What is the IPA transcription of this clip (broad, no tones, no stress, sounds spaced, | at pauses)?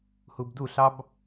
h u b d u ɬ ɑ b